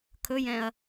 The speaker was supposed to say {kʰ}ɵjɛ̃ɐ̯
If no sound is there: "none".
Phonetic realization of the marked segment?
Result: kʰ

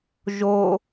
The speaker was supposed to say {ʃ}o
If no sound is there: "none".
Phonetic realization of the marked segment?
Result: ʒ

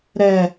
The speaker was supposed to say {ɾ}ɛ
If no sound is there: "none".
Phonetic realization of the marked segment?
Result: ɾ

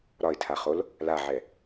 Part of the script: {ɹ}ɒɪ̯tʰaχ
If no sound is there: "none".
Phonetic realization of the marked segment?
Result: ɾ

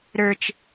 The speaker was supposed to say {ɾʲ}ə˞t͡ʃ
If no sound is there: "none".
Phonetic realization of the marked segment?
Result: ɾ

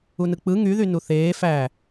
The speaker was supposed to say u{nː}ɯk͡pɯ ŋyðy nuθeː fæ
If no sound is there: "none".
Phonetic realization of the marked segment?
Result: n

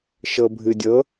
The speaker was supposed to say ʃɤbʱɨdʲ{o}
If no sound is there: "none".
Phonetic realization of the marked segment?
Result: ɤ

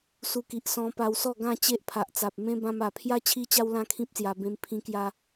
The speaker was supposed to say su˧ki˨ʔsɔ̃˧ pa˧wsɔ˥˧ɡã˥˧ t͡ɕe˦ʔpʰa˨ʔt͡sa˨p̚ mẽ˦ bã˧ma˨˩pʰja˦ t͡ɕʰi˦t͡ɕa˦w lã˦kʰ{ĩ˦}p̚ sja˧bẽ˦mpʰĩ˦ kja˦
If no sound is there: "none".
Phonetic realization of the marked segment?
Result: ĩ˦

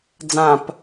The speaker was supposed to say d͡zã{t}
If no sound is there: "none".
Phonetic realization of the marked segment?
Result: p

